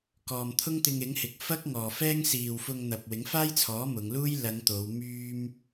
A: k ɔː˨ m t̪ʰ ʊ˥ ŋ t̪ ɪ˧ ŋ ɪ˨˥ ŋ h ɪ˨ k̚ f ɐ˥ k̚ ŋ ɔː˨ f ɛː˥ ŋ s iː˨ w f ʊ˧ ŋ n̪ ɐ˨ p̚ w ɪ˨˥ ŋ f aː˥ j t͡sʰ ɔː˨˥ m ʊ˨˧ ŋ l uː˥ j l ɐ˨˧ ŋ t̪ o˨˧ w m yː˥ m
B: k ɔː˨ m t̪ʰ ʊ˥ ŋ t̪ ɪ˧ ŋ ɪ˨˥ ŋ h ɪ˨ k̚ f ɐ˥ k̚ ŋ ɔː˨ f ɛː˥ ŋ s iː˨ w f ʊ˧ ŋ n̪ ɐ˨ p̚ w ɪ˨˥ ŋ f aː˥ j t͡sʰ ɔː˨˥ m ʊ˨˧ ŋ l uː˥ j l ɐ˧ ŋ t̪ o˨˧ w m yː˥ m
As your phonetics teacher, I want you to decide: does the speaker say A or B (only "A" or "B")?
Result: A